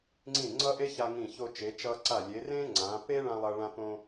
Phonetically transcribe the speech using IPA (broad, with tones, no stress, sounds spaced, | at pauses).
ŋ͡ǀ ĩ˧˩ ŋ͡ǀ ʌ˥ ʔ e˥ ç a˧ ŋ ĩ˧˩ ç o˧ t͡ʃ e˩˧ t͡ʃ ʌ˧ ǀ a˧˩ lʲ e˩˧ r ẽ˥ ŋ͡ǀ ã˩˧ p e˥ ɭ ã˧ lˠ ʌ˧ ɭ ã˧ p õ˧